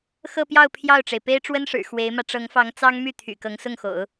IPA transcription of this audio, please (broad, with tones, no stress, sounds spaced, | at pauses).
x ɤ˥˧ p j ɑ˥˧ ʊ̯ pʰ j ɑ˥˩ ʊ̯ ʈ͡ʂ e˩ ɪ̯ p e˥ ɪ̯ ʈ͡ʂ w ə˥ n ʂ ɻ̩˨˩ x w e˧˥ ɪ̯ m ä˧ ʈ͡ʂ ɤ˧˥ ŋ f ɑ˧˥ ŋ t͡s ɑ˥ ŋ m y˥˩ t̪ʰ y̰˨˩ k ɤ˧˥ ŋ s ʊ˥˩ ŋ x o̰˨˩˦ ʊ̯